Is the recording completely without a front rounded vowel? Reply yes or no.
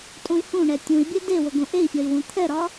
no